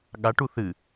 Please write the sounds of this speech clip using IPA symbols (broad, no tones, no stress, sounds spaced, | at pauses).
ɠ a ʈ u θ ɨ